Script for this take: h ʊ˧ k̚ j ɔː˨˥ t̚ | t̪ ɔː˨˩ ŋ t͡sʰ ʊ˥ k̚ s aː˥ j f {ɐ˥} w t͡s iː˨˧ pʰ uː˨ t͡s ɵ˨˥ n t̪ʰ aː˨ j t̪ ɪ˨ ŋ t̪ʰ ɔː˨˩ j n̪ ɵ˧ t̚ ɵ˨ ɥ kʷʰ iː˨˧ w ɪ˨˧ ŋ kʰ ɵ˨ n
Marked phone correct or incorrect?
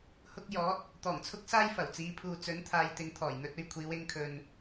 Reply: incorrect: ɐ˨˩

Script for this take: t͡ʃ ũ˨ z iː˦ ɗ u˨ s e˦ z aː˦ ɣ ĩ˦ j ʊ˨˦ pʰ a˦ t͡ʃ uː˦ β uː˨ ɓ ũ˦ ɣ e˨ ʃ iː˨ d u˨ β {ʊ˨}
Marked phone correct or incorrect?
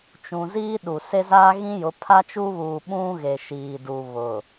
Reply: correct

